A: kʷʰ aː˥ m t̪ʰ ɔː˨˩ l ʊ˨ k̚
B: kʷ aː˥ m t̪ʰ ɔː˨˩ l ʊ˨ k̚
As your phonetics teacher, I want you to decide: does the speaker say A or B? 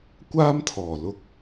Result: B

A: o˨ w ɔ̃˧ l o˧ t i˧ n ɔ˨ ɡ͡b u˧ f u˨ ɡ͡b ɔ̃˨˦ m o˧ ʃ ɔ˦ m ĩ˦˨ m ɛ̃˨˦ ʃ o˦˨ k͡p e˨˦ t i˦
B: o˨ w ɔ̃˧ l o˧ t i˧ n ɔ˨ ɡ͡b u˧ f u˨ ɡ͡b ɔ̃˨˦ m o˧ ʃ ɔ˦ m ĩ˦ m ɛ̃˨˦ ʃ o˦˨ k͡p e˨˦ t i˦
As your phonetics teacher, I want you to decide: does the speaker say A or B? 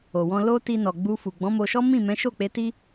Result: A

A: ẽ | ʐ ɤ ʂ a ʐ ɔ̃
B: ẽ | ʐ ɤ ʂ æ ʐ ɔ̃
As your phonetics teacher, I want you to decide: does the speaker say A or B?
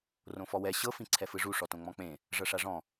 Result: A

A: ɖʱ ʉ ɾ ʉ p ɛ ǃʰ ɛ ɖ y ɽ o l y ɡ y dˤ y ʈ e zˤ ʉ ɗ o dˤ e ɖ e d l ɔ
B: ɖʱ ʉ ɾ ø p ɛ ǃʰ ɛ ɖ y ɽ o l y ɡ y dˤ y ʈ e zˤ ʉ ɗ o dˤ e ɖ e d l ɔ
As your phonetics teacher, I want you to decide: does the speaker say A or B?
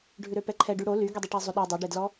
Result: B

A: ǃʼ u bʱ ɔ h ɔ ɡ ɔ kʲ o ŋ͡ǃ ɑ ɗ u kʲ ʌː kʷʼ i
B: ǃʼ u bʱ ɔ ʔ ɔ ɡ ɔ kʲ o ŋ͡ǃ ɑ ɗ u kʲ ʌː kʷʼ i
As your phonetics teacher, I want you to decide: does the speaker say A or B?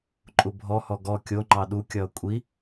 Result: A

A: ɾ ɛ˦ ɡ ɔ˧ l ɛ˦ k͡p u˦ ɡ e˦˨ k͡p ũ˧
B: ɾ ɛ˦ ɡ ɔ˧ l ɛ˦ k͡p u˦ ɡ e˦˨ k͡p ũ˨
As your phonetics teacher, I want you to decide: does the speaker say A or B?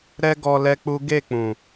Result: B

